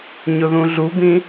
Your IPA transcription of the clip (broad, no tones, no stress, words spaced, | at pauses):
ɲʊðũɮubĩ